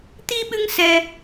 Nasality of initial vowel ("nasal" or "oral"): oral